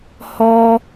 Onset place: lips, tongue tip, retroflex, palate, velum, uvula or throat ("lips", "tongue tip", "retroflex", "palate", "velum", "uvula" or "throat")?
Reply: throat